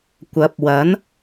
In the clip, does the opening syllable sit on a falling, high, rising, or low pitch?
rising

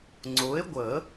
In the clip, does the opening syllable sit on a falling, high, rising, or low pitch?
rising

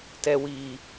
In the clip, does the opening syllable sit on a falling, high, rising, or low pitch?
low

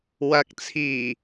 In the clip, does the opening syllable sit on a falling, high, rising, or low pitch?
rising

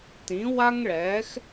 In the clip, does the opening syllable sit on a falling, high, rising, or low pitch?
rising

